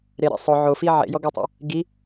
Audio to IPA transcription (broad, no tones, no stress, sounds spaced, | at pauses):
ɾ e ɾ ḛ sˤ ʊ ʕ o f i ʕ ḛ j ɔ ɡ ʊ tˤ a̰ | ɡ i